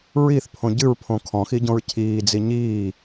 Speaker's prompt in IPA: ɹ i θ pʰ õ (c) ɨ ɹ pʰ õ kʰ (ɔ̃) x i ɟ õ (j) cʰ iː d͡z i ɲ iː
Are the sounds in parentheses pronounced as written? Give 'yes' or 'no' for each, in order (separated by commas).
no, yes, no